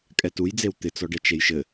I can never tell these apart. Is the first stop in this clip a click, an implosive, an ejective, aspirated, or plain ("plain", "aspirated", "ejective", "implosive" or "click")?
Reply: ejective